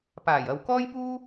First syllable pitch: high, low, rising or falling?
low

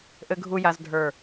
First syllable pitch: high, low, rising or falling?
low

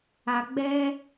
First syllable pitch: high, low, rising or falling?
low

